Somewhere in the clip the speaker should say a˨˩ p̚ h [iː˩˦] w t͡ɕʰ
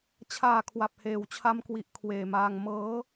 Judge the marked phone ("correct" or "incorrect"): incorrect